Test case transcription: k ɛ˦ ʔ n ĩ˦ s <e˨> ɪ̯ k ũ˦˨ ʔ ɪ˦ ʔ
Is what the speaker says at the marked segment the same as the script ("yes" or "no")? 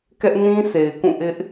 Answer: yes